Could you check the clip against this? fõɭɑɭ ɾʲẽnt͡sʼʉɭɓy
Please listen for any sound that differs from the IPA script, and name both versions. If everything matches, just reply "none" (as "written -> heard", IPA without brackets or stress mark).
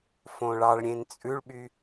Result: none